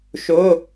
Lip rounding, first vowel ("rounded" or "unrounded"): rounded